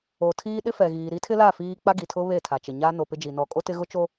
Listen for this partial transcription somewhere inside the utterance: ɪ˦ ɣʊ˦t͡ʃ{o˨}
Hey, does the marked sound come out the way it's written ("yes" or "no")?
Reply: no